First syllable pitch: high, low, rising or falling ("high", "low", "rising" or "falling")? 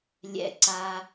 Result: low